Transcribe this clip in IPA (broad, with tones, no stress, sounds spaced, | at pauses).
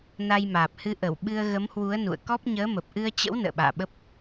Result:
n a˧ j m aː˨˩ p̚ h ɨ˧ ʔ ə˧˩ w ɓ ɨ˧ ə̯ ɣ ə˨˦ m h w u˨˦ ə̯ n ṵ˧˨ ə̯ k ɔ˦˥ p̚ ɲ əː˨˦ m ə˨˩ p̚ ʔ ɨ˧ ə̯ t͡ɕ ə̰˧˥ w n ə̰ː˧˨ ɓ a̰ː˧˨ ɓ ə˦˥ p̚